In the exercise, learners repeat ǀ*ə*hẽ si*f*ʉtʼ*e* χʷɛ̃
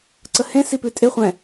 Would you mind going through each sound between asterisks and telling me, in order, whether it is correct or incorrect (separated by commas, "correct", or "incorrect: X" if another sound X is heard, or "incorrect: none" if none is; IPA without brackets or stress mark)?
correct, incorrect: p, correct